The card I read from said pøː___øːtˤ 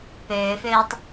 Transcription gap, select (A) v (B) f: B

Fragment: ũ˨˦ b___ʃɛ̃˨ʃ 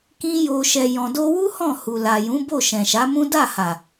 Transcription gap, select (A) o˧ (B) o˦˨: B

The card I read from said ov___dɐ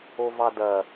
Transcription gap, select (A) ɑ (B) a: A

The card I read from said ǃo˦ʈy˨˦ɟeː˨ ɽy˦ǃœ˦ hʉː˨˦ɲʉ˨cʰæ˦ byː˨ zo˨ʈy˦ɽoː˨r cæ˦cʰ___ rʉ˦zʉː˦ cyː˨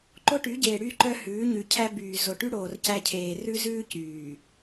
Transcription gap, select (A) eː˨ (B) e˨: A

